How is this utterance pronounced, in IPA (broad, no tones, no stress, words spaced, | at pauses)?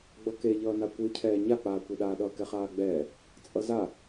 ɡ͡bʌkeʎʌːna kʷɯcʰɛː ɲak͡paːkʷeɗaː ɗʌːkɛχaːɡ͡bɛː | t͡sʼʌza